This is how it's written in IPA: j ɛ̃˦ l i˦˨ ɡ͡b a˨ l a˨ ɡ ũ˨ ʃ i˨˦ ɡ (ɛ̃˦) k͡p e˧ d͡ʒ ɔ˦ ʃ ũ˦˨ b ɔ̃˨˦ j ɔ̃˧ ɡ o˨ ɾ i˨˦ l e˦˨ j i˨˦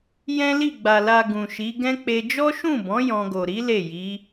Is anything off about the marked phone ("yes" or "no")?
no